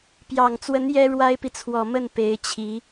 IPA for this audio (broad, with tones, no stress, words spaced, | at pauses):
pjɑ˨˩ŋt͡swə˧˥n jɛ˥ ɻwa˥ɪ̯pi˨ t͡sʰwɔ˨˩mə˥˩n pe˧˥ɪ̯t͡ɕʰi˧˥